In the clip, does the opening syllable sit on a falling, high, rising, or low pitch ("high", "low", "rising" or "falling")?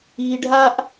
low